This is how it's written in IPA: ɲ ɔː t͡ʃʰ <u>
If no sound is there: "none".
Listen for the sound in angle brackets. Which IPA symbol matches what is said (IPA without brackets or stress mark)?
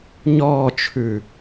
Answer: ʉ